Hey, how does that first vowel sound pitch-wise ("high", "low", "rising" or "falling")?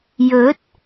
rising